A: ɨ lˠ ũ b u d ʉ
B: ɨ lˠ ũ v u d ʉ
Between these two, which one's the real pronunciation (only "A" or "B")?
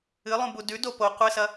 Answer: A